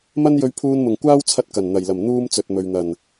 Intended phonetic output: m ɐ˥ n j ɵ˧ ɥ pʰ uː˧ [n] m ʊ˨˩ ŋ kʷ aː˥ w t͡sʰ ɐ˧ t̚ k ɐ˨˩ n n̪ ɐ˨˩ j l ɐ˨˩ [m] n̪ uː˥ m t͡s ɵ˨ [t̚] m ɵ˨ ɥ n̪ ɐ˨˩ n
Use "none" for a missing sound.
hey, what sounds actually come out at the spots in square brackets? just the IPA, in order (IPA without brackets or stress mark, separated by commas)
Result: n, m, t̚